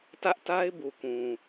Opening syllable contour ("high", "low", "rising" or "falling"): high